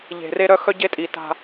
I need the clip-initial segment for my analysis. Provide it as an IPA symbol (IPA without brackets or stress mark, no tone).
ʎ